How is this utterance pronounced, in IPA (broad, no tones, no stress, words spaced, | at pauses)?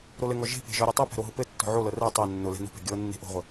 ɾolɘŋɔ ʒe̤pe̤ ʒɔɾʲetˤɤpɛ̤ ɾoɦʊpɘtːɔ̤ ʕolɤ rɛ tˤɛ nːʊlɛ̤ no̤pɛ̤ ɡʲɤnːe̤ ʔo̤ʁʷɘ